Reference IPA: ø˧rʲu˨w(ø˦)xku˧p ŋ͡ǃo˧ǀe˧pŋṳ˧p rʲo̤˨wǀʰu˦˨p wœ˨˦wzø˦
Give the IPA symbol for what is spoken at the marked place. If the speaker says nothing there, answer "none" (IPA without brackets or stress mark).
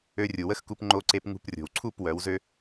ə˦